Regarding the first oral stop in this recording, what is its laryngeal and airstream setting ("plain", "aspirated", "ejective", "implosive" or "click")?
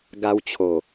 plain